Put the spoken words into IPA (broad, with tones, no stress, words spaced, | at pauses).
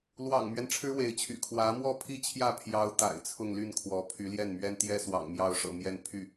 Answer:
lwɑ̰˨˩ŋmɥɛ˦n ʈ͡ʂʰɻ̩˥we˧˥ɪ̯t͡ɕʰy̰˨˩ kʰwä˧˥mwɔ˥pʰi˥˧t͡ɕʰjä˥˩ pʰjɑ˥ʊ̯ t̪a̰˨˩ɪ̯t͡sʰʊ˥˧ŋly˥˩nkʰwɔ˧˥ pʰy˧˥ljɛ˥˩nmɥɛ˥n t̪jɛ˥swɑ̰˨˩ŋmjɑ˥˩ʊ̯ʂɤ̰˨˩ mjɛ˥˧npʰy˥˩